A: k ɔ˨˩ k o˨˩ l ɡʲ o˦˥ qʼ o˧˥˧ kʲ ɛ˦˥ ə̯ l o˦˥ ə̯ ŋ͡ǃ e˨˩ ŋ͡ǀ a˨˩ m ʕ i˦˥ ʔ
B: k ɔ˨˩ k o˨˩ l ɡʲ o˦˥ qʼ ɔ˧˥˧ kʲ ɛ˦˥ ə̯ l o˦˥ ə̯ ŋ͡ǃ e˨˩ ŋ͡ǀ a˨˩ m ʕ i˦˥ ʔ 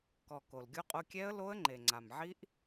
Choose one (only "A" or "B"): A